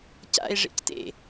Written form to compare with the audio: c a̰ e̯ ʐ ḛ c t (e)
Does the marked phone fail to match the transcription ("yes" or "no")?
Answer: yes